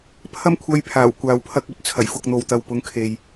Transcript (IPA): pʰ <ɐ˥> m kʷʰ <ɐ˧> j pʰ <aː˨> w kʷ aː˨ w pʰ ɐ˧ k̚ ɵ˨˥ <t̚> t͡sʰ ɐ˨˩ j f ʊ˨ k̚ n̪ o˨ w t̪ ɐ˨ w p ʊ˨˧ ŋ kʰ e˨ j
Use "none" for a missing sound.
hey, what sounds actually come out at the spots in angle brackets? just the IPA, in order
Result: ɐ˥, ɐ˧, aː˨˩, t̚

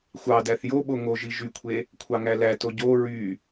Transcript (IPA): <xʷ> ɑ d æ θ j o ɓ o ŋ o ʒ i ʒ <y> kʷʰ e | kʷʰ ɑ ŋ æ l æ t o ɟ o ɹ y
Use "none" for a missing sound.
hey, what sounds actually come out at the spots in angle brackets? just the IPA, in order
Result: xʷ, y

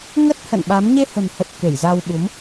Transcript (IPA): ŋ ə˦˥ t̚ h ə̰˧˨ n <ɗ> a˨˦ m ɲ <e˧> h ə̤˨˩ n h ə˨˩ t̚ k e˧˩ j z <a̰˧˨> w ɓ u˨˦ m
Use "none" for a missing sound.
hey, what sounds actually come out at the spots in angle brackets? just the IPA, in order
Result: ɓ, e˧, a˧

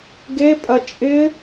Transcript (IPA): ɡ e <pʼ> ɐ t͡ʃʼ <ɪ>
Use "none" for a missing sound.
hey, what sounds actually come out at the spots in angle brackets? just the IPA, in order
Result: pʼ, ɪ

